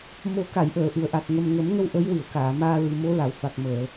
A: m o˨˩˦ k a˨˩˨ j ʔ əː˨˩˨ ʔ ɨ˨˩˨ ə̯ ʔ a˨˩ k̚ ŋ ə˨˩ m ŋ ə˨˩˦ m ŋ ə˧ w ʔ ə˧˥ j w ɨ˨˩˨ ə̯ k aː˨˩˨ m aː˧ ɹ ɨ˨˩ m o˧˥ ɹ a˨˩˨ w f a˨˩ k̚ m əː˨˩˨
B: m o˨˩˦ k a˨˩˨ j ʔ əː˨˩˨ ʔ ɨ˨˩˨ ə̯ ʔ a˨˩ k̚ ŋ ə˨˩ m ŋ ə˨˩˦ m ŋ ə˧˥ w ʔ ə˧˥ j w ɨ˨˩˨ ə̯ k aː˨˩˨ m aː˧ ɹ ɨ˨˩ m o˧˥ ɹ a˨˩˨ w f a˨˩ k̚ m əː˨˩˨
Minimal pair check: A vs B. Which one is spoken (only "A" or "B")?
A